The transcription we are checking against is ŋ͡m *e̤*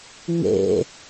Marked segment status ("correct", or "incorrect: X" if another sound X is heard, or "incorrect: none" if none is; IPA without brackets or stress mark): incorrect: ḛ